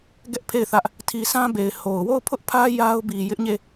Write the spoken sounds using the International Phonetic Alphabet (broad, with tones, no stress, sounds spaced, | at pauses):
ɡ ɛ˦ ʔ pʰ e˦˨ ɪ̯ θ ä˦ ʔ | tʰ i˨ sʰ ã˦ b e˨ ɪ̯ h o˨ ʊ̯ w o˦˨ ʊ̯ pʰ ʊ˦ ʔ pʰ ä˦ j a˦ ʊ̯ b i˨ j ɪ˦ ʔ ɲ e˦˨